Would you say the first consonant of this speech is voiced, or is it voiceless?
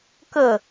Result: voiceless